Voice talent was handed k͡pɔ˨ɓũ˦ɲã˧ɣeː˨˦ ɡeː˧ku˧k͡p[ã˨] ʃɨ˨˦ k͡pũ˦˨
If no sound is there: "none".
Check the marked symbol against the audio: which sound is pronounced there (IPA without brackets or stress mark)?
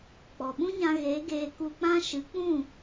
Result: ã˦